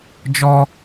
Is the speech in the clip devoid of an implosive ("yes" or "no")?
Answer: yes